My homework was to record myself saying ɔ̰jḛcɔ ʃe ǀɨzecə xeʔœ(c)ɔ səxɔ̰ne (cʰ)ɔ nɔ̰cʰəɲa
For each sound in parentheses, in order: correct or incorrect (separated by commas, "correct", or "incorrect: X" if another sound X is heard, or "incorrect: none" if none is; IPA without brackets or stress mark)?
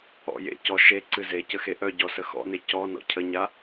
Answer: incorrect: ɟ, incorrect: c